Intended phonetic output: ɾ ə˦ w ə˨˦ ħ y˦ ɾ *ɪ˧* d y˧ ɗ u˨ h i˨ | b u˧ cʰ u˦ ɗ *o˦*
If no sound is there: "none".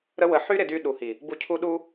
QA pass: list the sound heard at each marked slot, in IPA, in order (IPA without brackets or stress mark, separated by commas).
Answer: ɪ˧, u˦